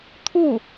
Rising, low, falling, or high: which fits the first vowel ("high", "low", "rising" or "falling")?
falling